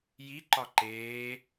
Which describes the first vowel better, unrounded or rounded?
unrounded